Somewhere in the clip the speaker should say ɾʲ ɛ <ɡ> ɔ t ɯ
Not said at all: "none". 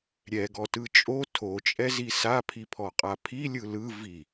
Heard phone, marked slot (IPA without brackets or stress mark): ɡ